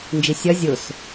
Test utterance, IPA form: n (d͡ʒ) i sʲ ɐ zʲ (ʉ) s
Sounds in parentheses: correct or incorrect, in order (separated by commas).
correct, incorrect